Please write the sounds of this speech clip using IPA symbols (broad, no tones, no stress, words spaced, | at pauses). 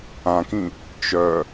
ãkĩ | t͡ʃœ